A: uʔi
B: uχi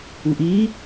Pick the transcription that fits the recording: A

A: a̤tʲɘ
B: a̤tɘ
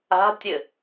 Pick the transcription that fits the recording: A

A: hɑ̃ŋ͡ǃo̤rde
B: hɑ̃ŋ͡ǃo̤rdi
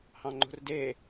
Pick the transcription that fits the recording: A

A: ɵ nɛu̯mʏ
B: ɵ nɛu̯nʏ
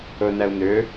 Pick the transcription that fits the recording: B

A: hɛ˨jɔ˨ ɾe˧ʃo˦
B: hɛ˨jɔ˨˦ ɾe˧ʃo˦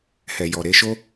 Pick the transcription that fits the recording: A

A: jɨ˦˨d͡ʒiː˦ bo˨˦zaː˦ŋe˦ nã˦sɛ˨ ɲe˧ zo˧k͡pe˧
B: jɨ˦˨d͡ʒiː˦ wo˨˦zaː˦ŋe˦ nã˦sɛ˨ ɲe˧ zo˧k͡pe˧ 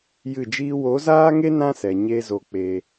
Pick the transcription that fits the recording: B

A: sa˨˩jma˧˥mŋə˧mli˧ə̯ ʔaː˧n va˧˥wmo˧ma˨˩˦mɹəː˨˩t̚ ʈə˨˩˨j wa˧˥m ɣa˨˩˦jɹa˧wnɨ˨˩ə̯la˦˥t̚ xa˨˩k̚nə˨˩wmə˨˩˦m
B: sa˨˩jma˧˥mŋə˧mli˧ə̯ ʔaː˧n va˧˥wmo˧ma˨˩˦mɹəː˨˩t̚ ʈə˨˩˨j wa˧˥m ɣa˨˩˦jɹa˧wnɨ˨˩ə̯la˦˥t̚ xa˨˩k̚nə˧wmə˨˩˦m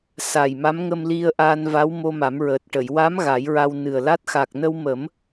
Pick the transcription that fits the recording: B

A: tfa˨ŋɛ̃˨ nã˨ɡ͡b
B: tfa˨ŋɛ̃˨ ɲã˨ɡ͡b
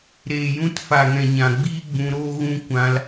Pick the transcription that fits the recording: B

